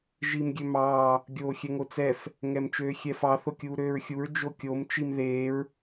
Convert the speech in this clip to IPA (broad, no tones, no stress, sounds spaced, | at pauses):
ʒ i m ɡʲ ø m ɑː | ɡʲ oː xʲ ɛ ŋ o t͡s ɛ f | ŋ ɛ m t͡ʃ øː xʲ ɛ f ɑ θ o kʲ uː ɾ øː ɹ xʲ u ɹ d͡ʒ o kʲ o m t͡ʃ i m ð eː ɹ